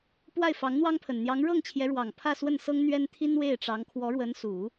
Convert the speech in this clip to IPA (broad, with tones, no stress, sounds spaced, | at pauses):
p w a˥˩ ɪ̯ f ɑ˧˥ ŋ n̪ w ɑ˥ ŋ pʰ ə˨˩ n n̪ j ɑ˧˥ ŋ ɻ ɤ˥˩ ŋ t͡ɕʰ j ɛ˧˥ ɻ w ɑ˨˩ ŋ pʰ ä˥˧ s w ə˥˩ n s ɤ˥ ŋ n̪ ɥ ɛ˥ n t̪ʰ i˥ n w e˥˩ ɪ̯ ʈ͡ʂ ɑ˧˥ ŋ kʰ w ɔ˧˥ ɻ w ə˧˥ n s u˨˩˦